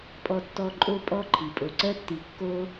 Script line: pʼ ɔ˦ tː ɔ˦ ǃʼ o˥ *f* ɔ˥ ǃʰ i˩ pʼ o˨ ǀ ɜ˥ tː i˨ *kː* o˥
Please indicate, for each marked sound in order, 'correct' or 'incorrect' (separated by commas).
incorrect, correct